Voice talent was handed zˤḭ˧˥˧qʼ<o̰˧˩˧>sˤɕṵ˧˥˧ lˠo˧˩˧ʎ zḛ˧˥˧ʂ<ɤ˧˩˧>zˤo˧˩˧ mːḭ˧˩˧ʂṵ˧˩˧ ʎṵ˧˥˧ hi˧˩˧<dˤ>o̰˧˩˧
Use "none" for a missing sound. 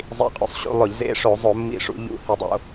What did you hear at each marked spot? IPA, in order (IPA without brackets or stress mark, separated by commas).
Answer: ṵ˧˩˧, o˧˩˧, dˤ